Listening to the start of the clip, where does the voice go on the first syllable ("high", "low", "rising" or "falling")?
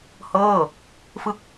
falling